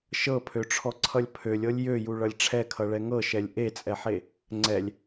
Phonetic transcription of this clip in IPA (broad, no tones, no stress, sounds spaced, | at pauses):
ʃ ɤ pʰ ø ʈ͡ʂʰ ɔ ǀʰ ʌ lʲ pʰ ø lʲ ɤ lʲ j ø j u ɭ ʌ lʲ ʈ͡ʂʰ ɛ kʰ ʌ ɭ ɛ ŋ ɤ ʃ ɛ lʲ ʔ e t͡sʼ ɛ ħ e | ŋ͡ǀ ɛ lʲ